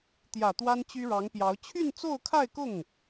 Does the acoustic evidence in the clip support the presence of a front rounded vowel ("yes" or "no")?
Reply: yes